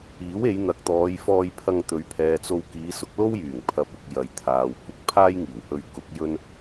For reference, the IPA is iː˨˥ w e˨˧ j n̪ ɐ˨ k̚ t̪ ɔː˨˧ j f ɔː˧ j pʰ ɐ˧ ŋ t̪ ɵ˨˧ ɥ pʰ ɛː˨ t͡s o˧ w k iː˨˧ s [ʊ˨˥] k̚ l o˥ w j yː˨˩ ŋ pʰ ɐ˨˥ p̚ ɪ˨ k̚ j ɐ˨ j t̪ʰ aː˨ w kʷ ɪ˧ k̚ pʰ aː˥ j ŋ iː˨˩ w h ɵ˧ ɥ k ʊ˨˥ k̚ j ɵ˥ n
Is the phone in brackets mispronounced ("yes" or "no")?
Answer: no